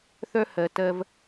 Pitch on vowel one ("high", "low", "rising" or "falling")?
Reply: high